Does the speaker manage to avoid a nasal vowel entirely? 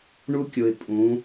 no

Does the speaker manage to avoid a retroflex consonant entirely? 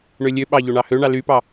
no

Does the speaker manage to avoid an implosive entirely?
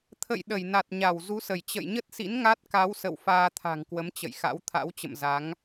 no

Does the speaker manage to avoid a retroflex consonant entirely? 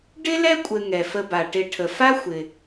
no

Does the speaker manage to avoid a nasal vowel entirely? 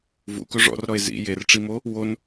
yes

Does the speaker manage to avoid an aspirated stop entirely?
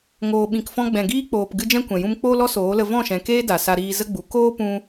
yes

